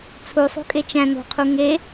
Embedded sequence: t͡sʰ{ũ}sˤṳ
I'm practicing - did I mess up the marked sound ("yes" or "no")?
yes